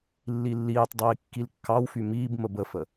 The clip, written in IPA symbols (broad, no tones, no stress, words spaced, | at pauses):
lːilːiːtˤdˤiː kːilkːɑwfy miːbmə bəfə